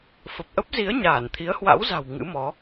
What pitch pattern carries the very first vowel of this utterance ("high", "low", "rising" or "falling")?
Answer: low